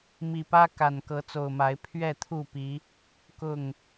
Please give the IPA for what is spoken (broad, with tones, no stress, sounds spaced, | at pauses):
m i˨˩ p ä˦ k a˨˩ n k ɤ˨˦ t͡s o˨˩ ʊ̯ m a˨˦ ɪ̯ pʰ ɥ ɛ˥˨ t̪ʰ u˥˨ p i˨˦ | k ʊ˥˨ ŋ